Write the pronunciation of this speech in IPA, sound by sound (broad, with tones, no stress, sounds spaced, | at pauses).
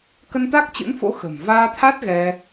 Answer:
k ə˧ n t̪ a˦˥ k̚ t͡ɕ ɨ̰˧˥ n f o̰˧˥ x ə̤˨˩ m v aː˧ t̪ʰ a˦˥ t̚ ɣ ɛ˧